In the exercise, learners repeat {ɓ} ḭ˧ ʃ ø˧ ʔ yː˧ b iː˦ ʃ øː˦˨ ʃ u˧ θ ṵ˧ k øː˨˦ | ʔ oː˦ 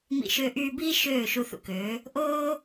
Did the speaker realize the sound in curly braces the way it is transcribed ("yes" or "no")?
no